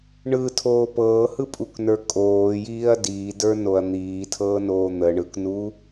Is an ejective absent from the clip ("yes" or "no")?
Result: no